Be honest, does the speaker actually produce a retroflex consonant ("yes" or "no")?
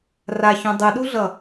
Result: no